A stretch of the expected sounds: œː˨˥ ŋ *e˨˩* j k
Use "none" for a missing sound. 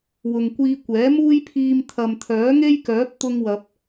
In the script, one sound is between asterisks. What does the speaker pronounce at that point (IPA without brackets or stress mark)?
e˥